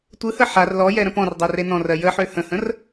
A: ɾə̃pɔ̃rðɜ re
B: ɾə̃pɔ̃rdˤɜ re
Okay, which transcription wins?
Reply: B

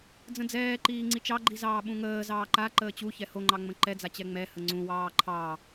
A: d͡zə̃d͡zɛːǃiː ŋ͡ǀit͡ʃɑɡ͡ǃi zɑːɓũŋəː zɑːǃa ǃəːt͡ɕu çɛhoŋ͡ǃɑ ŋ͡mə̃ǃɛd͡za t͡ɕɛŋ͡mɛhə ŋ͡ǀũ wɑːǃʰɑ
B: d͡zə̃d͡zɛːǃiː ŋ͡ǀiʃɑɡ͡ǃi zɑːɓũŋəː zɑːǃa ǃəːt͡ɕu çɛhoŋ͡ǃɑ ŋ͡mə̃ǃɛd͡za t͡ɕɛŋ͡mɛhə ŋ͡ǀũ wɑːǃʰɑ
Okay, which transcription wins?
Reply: A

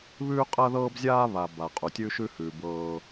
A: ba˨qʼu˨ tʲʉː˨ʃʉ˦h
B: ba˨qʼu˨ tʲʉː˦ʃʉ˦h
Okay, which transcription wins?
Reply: B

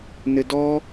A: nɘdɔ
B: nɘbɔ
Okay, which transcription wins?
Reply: A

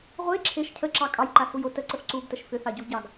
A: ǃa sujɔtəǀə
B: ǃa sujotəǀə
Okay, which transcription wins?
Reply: B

